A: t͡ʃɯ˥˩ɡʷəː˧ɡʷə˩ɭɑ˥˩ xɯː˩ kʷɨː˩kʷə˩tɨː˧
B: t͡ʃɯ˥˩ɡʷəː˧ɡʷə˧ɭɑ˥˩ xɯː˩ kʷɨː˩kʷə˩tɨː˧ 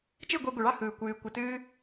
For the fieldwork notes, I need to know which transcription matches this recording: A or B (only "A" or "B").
A